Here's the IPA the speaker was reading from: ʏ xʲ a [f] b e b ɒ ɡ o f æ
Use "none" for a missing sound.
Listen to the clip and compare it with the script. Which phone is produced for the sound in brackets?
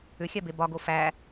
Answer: none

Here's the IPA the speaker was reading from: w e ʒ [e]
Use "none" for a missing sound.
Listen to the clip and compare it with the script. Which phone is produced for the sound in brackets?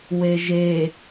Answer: e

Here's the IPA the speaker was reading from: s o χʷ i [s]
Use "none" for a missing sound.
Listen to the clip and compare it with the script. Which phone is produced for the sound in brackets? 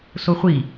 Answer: none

